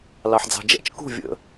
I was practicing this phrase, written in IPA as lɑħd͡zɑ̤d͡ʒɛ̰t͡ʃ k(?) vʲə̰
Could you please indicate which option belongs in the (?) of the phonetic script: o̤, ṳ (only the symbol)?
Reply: ṳ